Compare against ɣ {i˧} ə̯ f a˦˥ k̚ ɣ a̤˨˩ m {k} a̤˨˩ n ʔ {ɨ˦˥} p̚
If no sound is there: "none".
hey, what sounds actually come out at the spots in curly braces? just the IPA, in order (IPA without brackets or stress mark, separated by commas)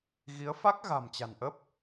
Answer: i˨˦, t͡ɕ, ə˦˥